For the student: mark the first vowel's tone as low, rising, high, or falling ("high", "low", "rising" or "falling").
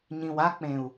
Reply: low